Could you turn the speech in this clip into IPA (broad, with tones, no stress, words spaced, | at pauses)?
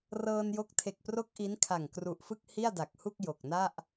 rɤː˧njo˦˥k̚ tʰe˨˩k̚pro˦˥k̚ ʔi˦˥nkʰa˨˩ŋkru˨˩ʔfɯ˥˩k̚ hi˥˩a̯da˨˩k̚hu˥˩k̚ jo˨˩k̚na˥˩ʔ